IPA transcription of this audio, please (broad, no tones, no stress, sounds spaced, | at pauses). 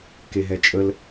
k e ɦ ɛ t͡ʃʼ ə l